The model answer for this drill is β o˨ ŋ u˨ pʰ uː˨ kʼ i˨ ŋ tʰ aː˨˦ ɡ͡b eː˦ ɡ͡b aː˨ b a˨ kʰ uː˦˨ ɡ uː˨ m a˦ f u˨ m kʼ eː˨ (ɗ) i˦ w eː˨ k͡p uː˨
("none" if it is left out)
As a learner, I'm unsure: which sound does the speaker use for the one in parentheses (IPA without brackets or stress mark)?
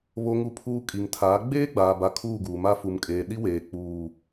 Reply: ɗ